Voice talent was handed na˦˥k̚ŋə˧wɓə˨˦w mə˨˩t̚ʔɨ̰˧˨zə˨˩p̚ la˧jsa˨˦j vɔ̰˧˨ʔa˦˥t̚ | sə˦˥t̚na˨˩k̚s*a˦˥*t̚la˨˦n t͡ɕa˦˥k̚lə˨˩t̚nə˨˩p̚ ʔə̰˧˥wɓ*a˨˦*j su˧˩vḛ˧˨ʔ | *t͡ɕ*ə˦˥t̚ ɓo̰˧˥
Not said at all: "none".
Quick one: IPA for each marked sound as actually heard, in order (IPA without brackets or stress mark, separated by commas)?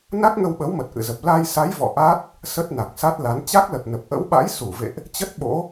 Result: a˦˥, a̰˧˥, t͡ɕ